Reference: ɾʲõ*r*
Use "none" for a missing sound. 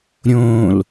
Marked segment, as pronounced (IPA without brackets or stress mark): l